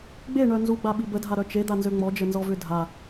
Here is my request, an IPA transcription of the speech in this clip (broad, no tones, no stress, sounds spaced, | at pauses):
ɡ͡b e ɳ œ n z u ɡ͡b a ɓ i b ə dʱ a ɾ œ t͡ʃ e d̪ a n z ø ŋ͡m ɔ d͡ʒ ə n z ɔ v ʏ dʱ a